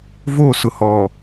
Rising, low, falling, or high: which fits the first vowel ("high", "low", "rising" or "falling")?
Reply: falling